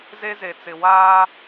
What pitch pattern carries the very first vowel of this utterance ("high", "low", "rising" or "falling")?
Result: high